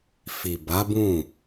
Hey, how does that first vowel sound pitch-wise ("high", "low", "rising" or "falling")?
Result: low